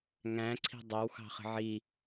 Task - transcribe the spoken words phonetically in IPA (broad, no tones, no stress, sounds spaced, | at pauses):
ŋ æ̃ ǀʰ i̤ dˤ æ w x ɑ̤ χ ə̤ ʕ i